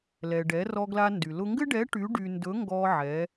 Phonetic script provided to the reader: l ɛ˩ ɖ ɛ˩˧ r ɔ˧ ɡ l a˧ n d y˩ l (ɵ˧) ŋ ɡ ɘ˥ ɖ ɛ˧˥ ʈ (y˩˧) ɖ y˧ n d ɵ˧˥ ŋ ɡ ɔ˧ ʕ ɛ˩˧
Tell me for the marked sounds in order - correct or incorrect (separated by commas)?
incorrect, incorrect